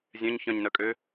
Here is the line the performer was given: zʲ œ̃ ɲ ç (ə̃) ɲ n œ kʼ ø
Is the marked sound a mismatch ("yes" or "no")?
yes